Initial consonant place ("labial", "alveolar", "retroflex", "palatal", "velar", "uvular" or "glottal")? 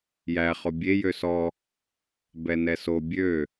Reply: palatal